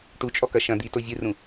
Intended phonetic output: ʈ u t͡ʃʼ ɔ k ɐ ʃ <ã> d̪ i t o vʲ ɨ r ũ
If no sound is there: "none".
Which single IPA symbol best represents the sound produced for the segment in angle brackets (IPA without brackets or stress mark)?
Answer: ɐ̃